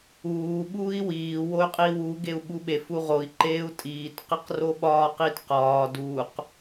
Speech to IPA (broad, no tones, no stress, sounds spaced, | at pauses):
uː ɓ uː i̯ w iː w o y̯ qʼ iː w u ɡ e u̯ ɓ u ɓ e f u ʁ o i̯ ǃ eː u̯ tʼ iː t q i q r o ɓ ɒː q i t q ɒː d u q